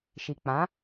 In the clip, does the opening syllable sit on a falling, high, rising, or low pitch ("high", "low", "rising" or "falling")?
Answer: low